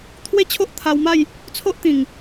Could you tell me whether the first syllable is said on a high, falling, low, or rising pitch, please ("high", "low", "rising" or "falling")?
falling